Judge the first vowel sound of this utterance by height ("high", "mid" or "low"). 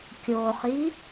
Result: mid